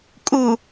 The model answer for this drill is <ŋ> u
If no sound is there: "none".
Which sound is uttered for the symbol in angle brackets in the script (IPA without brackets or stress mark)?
kʼ